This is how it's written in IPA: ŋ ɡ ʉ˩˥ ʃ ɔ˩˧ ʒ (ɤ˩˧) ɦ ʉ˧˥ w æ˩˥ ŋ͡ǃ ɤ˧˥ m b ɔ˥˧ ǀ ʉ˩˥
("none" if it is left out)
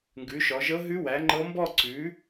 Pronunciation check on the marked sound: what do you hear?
ɤ˧˥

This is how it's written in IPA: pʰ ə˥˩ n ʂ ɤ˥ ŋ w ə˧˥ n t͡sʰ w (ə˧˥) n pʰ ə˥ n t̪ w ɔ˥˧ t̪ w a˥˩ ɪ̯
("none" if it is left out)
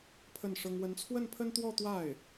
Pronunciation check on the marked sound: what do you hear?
ə˥˩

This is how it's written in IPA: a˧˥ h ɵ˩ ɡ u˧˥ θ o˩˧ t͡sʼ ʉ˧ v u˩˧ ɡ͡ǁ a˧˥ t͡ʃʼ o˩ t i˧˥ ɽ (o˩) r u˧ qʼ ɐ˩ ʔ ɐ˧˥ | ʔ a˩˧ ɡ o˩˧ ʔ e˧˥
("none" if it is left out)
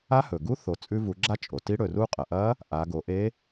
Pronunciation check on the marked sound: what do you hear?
ɵ˩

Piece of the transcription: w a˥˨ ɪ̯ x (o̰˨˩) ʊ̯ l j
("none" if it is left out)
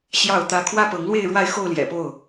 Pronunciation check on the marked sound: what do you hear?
o˥˨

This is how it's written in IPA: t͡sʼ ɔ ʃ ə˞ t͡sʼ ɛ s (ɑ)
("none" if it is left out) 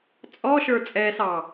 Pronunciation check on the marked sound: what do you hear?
ɑ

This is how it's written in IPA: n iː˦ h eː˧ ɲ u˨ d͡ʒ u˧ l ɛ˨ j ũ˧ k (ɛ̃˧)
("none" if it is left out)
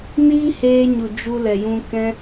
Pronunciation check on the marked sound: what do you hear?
ɛ̃˧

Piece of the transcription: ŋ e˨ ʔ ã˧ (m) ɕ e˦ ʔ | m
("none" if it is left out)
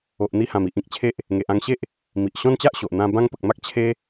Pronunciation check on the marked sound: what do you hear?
ŋ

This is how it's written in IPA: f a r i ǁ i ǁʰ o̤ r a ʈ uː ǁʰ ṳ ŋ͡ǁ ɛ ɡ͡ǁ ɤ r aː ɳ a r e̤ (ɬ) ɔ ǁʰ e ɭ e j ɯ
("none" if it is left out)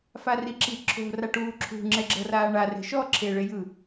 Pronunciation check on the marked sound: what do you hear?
ʃ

